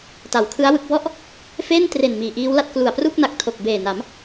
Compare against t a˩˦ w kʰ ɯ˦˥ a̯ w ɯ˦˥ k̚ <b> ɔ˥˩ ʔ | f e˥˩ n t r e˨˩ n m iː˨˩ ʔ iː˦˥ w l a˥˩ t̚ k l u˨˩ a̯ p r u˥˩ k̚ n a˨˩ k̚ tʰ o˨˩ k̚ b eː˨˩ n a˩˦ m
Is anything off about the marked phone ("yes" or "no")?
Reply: no